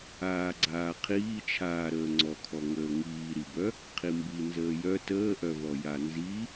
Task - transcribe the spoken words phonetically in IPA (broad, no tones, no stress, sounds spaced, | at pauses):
aː ɡ͡ǀ aː qʰ iː t͡ʃʰ aː ɾ əː ŋ͡ǀ ɔ kʰ ɔ ŋ əː ŋ iː ɾ i b œ | qʰ i m b i n z əː j œ t əː ʔ œ v ɔ j a n z i